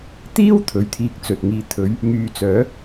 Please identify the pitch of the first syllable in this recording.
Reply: high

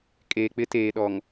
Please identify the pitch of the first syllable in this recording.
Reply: low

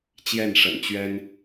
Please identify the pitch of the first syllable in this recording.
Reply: falling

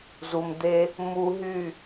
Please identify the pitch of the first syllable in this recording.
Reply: low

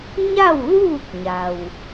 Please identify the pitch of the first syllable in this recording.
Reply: falling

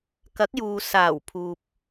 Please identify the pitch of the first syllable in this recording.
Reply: rising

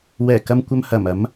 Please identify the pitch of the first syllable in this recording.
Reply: low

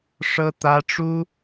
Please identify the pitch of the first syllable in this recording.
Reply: high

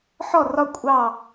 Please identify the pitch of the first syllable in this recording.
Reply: falling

